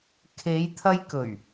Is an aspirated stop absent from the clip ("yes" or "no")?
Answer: no